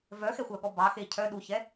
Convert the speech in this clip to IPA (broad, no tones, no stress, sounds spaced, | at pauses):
v œ x ɛ xʷ œ ɠ ɔ b ɑ x e cʰ œ ɗ u ç ɛ